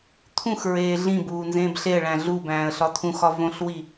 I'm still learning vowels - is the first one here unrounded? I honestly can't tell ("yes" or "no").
no